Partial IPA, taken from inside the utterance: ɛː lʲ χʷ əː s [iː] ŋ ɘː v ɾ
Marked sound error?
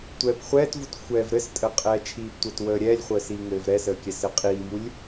no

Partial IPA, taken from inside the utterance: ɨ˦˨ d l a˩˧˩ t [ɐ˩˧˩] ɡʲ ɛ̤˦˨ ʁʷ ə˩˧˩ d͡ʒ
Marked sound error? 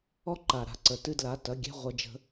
no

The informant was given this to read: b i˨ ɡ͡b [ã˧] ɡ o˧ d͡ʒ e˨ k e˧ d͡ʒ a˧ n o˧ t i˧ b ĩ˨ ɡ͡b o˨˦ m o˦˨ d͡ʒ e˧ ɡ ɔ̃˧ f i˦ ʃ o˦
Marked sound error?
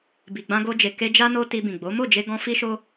no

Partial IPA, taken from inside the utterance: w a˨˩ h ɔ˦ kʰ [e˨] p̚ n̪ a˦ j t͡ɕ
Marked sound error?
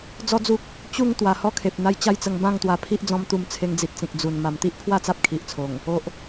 no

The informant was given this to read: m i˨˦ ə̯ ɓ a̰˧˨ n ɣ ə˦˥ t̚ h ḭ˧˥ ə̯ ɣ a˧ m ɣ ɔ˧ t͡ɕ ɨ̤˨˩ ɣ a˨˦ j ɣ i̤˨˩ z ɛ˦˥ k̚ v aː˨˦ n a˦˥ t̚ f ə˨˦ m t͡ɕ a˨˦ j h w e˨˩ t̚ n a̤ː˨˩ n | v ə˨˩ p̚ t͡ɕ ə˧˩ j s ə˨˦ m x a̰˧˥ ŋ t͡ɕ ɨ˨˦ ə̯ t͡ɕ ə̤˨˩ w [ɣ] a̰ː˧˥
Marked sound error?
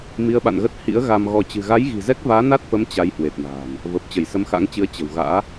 no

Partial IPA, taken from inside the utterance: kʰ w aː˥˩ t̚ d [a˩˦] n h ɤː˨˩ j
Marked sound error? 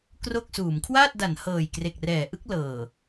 no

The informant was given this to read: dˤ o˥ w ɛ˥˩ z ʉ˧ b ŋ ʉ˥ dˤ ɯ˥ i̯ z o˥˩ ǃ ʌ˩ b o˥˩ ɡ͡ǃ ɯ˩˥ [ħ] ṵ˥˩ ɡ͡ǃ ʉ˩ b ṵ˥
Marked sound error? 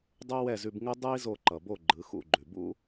yes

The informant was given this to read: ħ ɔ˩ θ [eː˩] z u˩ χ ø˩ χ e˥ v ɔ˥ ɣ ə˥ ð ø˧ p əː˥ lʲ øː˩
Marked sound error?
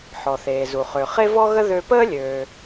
no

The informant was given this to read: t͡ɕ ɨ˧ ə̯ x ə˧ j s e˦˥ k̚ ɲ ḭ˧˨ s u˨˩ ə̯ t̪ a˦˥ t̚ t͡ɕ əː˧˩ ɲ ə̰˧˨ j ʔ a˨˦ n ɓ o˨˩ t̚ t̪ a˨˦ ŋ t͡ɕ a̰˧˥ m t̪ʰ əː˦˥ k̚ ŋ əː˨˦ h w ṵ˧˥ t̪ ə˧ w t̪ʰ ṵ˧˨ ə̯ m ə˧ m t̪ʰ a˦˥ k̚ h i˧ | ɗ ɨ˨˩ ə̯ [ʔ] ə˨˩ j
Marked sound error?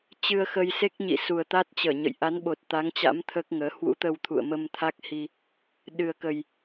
yes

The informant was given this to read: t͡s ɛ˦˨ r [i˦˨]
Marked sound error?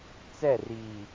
yes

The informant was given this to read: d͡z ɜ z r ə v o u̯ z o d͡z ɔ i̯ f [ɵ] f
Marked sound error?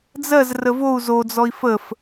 yes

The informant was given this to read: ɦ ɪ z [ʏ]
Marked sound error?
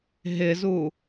yes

